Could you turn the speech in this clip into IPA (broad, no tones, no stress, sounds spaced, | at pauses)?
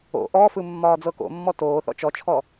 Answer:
o̰ ʔ ɔ f ɯ mː ɒː d͡z ɤ k o̰ mː ɔ t oː θ ɔ̰ t͡ʃ ɔ t͡ʃʰ ɔ